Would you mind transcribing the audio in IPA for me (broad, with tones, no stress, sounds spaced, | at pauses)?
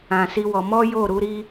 ã˧ s i˦ w ɔ˧ m ɔ˦ j o˦˨ ɾ u˨˦ ɾ i˦